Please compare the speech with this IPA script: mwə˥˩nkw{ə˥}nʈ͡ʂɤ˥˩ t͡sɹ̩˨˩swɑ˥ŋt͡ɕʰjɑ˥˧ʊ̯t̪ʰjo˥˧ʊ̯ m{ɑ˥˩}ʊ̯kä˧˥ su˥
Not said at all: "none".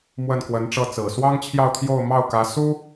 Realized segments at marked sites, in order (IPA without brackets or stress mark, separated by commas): ə˧˥, ɑ˥˩